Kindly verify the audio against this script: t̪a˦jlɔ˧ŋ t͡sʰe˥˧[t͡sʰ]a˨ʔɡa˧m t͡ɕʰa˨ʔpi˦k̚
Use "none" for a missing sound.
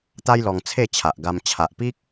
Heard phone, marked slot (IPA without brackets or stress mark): t͡ɕʰ